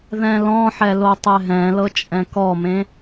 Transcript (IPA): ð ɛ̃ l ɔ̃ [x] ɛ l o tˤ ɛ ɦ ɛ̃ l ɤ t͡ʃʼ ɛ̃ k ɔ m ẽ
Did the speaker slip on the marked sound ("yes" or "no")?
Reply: yes